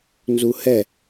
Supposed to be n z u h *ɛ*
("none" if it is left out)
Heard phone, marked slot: ɛ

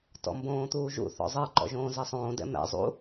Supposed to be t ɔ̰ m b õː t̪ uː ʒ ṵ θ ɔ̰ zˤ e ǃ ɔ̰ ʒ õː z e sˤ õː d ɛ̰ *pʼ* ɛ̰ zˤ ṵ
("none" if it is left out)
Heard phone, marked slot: m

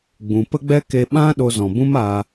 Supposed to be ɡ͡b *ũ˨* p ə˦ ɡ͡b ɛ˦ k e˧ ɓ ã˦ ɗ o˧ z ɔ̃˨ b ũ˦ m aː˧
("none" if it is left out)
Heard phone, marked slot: ũ˨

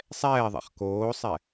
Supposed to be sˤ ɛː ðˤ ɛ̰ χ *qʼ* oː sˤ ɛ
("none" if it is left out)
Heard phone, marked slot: k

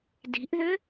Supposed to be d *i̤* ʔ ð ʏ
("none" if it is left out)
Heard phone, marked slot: i̤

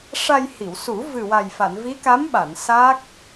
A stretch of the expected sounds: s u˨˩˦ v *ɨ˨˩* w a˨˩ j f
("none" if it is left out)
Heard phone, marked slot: ɨ˨˩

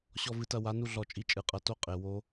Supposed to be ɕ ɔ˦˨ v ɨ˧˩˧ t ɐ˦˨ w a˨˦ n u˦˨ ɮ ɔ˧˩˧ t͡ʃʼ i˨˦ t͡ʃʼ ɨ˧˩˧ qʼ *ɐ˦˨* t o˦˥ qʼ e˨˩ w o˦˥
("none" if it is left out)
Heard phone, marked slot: ɐ˦˨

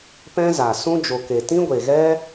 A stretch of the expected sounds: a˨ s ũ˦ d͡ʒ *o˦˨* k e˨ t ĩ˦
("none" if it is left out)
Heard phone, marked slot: o˨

